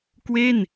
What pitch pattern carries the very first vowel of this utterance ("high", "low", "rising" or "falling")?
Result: falling